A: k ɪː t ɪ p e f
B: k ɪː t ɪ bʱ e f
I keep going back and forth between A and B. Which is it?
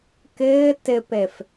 A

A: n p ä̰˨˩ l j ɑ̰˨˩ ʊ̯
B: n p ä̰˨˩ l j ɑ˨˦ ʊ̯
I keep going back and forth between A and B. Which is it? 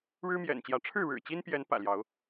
B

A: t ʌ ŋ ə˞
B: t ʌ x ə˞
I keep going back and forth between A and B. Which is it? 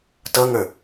A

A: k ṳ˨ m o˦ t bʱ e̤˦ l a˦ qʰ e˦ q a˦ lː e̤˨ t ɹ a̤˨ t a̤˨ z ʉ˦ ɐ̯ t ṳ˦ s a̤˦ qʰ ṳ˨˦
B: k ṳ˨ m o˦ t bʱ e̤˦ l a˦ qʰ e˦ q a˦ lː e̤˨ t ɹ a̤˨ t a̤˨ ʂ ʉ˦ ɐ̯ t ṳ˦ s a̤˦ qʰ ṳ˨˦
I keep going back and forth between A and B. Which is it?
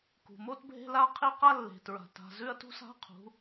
A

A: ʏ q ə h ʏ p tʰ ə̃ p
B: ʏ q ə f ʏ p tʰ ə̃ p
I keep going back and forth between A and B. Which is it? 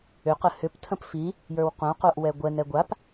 A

